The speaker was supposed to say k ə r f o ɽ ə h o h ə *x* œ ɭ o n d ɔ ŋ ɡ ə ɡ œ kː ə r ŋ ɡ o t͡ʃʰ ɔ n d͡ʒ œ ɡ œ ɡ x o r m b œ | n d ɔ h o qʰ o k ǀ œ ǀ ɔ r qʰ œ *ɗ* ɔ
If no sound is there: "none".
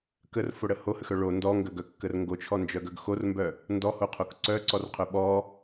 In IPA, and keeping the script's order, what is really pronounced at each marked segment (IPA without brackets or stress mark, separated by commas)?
x, ɓ